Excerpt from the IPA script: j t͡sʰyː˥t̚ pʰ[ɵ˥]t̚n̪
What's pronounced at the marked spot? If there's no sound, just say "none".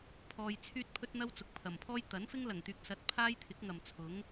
ɵ˥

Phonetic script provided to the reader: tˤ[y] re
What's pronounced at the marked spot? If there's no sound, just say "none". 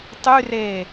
y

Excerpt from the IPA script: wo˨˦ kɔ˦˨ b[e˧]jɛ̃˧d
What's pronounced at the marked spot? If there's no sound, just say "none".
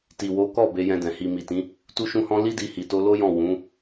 e˧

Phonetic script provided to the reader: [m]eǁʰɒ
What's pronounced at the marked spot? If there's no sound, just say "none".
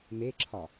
m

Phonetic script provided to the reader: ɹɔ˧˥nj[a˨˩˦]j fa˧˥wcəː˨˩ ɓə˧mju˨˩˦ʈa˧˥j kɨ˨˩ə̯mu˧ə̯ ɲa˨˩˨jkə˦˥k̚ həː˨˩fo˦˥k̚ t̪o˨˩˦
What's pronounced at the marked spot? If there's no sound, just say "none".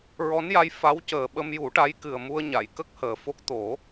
a˧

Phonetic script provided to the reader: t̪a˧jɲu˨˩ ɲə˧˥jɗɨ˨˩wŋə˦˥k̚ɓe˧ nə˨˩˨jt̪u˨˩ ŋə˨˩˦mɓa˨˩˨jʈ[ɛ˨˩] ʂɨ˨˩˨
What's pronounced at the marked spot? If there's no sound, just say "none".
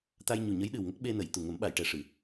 ɛ˨˩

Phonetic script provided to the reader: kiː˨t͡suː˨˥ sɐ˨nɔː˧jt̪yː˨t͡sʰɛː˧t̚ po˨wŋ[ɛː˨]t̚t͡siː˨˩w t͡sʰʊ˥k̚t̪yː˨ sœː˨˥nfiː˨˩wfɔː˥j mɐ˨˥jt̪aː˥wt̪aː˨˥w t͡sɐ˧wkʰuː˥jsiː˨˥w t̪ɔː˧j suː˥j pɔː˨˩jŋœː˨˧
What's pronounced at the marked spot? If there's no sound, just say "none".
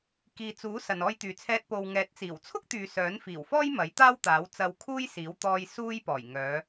ɛː˨˥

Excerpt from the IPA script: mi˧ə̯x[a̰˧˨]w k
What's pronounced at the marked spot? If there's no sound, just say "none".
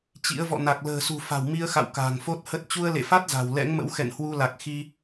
a̰˧˨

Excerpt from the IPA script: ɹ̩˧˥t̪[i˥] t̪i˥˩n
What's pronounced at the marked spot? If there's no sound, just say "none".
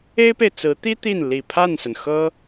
i˥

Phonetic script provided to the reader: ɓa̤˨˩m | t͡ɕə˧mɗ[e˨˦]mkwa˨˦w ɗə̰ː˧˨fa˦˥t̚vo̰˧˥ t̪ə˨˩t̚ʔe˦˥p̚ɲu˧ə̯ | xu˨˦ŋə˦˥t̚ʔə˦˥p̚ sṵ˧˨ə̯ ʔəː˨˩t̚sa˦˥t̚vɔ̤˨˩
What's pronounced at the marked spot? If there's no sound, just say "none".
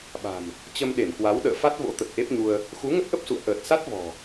e˧˩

